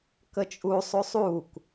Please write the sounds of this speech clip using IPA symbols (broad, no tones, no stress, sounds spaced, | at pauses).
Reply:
k ə t͡ʃʼ u sˤ u sˤ u k